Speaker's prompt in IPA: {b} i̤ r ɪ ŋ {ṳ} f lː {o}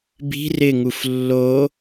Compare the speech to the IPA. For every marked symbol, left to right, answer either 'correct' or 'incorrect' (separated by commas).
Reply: correct, incorrect, correct